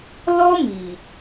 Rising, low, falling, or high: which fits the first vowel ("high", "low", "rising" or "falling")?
high